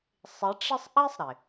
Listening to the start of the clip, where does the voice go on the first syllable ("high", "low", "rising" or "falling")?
rising